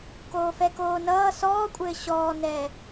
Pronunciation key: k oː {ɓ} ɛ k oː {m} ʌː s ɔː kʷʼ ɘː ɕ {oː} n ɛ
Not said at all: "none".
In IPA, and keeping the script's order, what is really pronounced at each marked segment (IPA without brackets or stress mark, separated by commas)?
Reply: f, n, ɔː